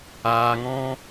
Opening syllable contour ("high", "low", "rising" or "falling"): low